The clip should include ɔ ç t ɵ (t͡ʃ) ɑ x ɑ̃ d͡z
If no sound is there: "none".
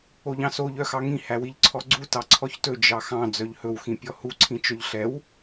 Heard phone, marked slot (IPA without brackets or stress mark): d͡ʒ